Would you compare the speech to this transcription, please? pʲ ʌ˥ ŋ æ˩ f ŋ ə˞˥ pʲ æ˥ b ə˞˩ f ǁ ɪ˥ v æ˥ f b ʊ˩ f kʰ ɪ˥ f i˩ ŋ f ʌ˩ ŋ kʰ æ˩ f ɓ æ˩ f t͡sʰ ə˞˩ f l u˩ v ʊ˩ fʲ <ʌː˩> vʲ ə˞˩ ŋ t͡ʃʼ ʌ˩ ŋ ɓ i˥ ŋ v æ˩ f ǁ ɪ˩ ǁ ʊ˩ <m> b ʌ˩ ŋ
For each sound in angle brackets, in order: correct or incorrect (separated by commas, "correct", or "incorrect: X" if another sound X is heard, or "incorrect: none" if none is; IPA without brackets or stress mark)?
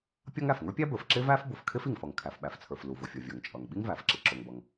incorrect: ʌ˩, incorrect: ŋ